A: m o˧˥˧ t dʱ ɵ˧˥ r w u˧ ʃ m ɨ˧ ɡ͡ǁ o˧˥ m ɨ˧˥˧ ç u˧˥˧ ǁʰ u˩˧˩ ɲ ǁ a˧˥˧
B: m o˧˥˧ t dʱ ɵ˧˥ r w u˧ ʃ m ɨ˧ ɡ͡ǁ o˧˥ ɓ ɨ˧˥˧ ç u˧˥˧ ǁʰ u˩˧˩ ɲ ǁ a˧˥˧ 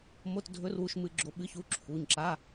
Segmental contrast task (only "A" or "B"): B